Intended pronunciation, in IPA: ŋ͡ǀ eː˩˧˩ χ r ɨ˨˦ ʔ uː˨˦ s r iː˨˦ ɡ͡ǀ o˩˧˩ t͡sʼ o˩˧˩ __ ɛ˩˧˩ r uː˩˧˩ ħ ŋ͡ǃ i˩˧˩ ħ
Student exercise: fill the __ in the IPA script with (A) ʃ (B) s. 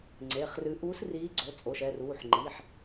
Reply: A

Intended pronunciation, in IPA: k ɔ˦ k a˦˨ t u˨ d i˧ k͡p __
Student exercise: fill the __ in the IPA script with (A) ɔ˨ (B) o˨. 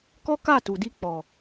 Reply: A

